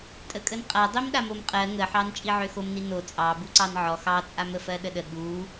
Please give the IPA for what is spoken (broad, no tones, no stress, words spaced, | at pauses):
tʼəkʼənqʼa dˤimɗamomqʼɜ ŋəħɑn t͡ʃʼiʕøxomni no t͡sʼɑbu ǀɑnʕɔ xɑt͡sʼam əfɜɗəɗə ɠu